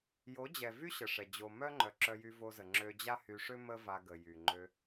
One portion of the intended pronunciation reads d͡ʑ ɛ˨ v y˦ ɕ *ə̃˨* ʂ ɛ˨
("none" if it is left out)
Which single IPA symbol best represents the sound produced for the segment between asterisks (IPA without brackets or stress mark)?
ə˨